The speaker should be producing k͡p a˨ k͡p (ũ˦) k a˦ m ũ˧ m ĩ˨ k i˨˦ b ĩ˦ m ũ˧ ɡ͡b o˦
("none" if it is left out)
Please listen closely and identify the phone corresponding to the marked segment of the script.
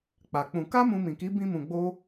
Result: ũ˧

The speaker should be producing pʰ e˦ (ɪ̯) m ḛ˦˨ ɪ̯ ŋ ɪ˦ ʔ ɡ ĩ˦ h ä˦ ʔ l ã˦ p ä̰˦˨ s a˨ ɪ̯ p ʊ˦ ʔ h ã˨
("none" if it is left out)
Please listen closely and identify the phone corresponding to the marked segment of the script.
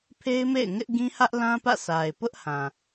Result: ɪ̯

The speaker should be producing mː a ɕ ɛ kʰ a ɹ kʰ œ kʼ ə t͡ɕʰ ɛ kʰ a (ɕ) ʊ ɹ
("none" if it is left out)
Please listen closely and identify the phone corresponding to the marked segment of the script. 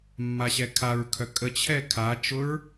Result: t͡ʃ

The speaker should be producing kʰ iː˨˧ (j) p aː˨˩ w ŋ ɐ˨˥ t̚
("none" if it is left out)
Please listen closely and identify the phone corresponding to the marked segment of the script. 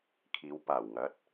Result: w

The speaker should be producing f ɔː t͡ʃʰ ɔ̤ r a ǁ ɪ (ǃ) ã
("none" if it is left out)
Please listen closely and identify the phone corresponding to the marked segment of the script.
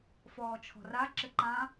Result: ǃ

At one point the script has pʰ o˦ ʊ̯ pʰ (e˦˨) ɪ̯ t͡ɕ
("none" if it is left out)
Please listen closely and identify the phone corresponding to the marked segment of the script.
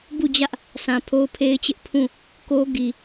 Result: e˦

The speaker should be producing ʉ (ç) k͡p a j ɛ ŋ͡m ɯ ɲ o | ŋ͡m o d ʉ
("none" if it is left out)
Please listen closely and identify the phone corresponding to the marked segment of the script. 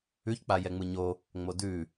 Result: ç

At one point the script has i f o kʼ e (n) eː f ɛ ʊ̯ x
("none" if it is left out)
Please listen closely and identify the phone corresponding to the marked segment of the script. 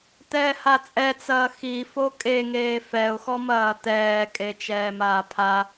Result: ŋ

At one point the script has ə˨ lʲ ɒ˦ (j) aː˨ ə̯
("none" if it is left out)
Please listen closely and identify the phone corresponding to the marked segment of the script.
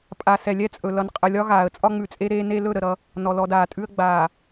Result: ɣ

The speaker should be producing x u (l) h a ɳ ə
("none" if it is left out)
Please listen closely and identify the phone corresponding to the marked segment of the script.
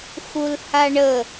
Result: l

